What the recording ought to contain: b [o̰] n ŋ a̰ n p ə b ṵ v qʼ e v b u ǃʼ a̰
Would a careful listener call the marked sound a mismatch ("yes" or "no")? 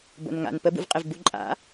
no